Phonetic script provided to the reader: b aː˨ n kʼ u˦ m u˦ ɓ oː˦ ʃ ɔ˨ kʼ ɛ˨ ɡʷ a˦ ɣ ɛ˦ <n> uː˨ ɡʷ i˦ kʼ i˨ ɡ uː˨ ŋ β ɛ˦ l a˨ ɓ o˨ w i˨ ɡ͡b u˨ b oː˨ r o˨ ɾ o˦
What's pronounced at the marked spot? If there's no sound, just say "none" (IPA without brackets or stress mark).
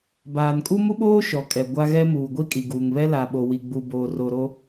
m